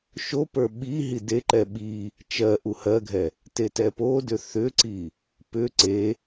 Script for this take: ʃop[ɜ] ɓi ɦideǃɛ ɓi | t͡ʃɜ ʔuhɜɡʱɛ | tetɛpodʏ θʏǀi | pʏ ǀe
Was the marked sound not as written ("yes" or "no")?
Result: yes